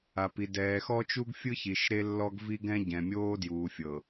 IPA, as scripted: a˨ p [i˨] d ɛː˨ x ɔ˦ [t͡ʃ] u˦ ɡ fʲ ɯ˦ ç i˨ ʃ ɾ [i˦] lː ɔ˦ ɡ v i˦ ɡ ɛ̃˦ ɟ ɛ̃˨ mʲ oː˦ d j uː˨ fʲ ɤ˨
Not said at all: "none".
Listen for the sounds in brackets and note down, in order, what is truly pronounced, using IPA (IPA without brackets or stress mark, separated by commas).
i˨, t͡ʃ, e˦